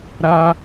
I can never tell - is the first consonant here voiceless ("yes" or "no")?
no